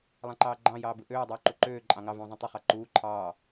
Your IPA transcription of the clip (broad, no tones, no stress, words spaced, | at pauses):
lˠɑ̃ǃɑːɡ͡ǃɑ̃ jɑːbɯʔøː dˤyːǃuǃøː ǃʼɑ̃ŋɑ vũːzˤẽtˤy χɑǃuː ǃʰɑː